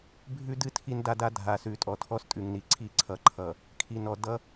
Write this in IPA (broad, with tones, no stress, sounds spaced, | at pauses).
bʱ ʉ˦ d ɨ˦ tʰ i˦ n d a˦ d a˦ dʱ a˨ s ʉ˨ tʼ ɔ˨ tʰ ɔ˦ s tʼ ʉ˨ ŋ n i˨ ǀʰ i˦˨ ǀʰ ʌ˨ ǃʰ ʌ˨ | kʰ i˨ n ɔ˨ d ʌ˦